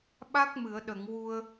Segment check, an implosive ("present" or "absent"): present